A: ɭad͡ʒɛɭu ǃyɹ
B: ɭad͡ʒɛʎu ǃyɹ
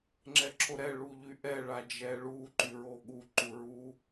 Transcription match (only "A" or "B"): A